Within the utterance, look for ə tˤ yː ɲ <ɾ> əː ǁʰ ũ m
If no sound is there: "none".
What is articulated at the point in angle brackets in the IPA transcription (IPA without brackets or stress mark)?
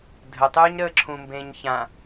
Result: ɾ